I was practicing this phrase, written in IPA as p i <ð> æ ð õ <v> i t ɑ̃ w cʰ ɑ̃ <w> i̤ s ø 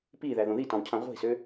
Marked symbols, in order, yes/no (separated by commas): yes, no, no